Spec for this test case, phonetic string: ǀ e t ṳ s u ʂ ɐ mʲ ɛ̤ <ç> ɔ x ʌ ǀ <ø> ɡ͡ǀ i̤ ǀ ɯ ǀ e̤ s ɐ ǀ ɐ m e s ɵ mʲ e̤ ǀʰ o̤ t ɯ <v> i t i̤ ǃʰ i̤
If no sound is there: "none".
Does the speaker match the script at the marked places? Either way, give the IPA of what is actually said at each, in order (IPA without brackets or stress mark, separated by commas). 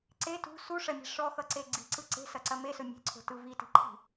ʂ, e, v